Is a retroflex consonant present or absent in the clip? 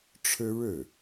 present